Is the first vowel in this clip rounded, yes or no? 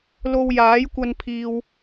yes